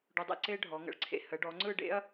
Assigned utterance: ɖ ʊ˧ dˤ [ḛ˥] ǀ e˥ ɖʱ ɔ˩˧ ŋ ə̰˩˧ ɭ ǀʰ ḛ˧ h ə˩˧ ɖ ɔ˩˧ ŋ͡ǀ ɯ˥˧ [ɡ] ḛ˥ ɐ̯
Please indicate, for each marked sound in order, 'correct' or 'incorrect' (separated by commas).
correct, incorrect